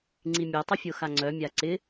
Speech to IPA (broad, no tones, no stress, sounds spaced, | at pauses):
ŋ͡ǀ i mʲ ɛ tˤ ʏ fʲ o x a ŋ͡ǀ œ mʲ a ǀ ɪ